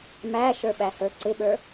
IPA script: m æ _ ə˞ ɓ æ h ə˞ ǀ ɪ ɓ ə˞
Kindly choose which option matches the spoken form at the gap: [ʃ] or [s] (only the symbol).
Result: ʃ